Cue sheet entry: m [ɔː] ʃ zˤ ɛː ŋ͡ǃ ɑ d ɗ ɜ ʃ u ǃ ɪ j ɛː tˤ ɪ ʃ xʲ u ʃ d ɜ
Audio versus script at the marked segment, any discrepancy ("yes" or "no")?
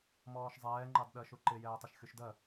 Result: no